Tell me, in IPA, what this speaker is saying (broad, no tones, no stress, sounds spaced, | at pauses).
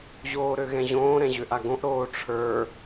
ʑ oː ɾ ø ɣ ɛ̃ ʑ õː ɾ ɛ̃ ʑ ø ʔ a ɡ õ ʔ ɾ oː ʈ͡ʂʰ ə˞